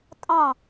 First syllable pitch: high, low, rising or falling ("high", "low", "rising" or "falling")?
falling